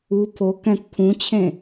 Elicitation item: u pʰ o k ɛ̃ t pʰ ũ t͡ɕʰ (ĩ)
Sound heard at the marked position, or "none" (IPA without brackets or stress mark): ẽ